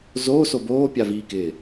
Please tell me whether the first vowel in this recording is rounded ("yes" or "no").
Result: yes